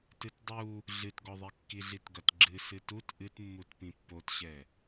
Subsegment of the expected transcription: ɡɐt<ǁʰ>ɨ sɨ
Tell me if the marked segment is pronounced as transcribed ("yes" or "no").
no